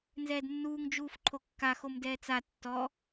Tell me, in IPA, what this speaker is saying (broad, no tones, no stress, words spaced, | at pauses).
nzɛːdnːuːŋ d͡ʒuːfǃʰokːa xomdɛːt͡sa tːɔ